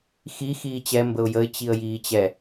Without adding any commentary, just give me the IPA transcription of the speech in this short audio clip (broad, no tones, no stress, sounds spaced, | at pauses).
x i x iː t͡ɕ ɛ m b ə ʊ̯ j ə ɪ̯ t͡ɕ i ə̯ j iː t͡ɕ ɛ